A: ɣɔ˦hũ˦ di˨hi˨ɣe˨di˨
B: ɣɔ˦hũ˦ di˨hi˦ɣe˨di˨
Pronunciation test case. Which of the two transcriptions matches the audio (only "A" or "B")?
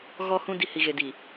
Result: A